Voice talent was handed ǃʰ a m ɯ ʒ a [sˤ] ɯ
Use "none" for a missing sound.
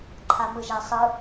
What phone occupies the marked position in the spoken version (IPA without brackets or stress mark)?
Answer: sˤ